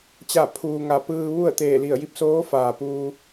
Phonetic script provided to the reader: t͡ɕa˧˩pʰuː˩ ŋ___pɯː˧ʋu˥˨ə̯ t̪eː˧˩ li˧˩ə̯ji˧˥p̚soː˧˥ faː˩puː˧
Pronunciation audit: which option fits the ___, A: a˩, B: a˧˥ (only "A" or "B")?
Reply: A